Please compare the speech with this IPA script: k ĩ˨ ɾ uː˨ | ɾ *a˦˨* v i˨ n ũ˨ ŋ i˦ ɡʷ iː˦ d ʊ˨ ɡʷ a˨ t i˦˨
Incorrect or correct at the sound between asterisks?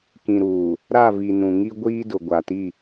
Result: correct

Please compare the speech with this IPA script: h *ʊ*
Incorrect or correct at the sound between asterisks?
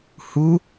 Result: incorrect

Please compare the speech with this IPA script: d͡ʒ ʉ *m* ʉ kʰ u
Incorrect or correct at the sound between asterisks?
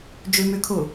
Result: correct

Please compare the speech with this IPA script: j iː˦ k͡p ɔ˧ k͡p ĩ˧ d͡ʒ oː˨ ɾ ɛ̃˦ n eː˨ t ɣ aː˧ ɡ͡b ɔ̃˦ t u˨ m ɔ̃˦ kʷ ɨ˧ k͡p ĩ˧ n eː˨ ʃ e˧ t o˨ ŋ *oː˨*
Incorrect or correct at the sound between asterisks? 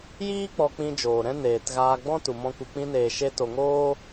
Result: incorrect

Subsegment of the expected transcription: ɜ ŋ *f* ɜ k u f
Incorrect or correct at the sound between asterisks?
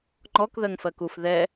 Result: correct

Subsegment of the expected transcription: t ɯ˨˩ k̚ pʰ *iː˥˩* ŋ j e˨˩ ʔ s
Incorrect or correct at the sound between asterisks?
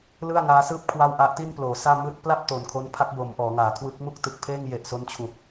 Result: incorrect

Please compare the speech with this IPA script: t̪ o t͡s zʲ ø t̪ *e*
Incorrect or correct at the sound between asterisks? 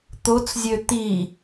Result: incorrect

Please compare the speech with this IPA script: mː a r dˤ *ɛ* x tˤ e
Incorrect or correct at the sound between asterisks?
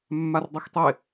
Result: correct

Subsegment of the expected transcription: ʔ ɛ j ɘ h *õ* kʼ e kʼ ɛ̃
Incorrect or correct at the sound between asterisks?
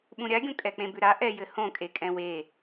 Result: correct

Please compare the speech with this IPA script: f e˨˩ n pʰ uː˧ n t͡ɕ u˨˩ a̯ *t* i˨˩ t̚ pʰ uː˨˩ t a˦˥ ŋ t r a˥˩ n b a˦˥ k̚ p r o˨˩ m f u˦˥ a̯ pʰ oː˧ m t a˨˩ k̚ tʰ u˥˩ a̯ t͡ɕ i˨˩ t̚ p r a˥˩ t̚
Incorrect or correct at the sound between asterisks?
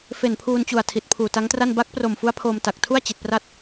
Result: incorrect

